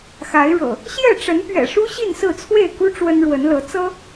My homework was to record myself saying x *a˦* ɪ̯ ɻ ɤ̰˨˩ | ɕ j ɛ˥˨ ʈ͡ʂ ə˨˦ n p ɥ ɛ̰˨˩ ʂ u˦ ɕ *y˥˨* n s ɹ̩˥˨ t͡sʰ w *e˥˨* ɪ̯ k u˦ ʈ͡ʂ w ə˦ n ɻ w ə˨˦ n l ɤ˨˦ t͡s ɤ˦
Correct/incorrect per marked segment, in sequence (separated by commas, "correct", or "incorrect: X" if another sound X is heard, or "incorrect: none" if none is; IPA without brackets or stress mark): incorrect: a˨˦, incorrect: i˥˨, correct